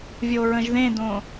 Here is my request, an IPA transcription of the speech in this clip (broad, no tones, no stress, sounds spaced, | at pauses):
vʲ o ɹ ə̃ ʒ ð ẽ d õ